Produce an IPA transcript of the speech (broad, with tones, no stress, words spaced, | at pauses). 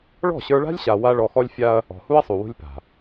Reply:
ɭɔ̤˦˨ɕə˞˧ɭa̤˦lʲ ɕa˧wa˦ ɭɔ˧xɔ˦lʲfʲa˦ɐ̯ | ɔ̤˨hu˦ɐ̯sˤu˨wṳ˧lʲ pa̤˨